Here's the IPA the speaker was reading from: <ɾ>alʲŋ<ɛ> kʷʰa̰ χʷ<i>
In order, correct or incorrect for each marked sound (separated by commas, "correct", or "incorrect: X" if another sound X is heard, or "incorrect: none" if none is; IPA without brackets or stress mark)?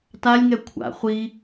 incorrect: t, correct, correct